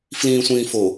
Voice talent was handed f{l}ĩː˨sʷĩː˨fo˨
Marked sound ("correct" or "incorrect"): correct